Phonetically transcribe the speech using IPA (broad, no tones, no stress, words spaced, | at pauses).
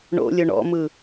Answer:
ɳo̰lʲɵ ɳɔ̰mɯ